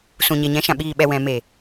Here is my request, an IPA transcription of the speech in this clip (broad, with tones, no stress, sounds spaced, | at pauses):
s ũ˨ ɲ e˨ ɲ ɛ̃˨˦ ʃ ã˨ ɓ iː˨ ɓ ɛ˨ w ɛ̃˨ m e˨